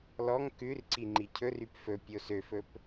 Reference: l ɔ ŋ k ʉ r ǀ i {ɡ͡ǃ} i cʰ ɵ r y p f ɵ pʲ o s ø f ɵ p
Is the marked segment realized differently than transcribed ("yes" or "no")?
yes